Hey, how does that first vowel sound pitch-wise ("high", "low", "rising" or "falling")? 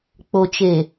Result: low